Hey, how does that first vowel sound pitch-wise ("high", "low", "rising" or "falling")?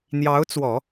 rising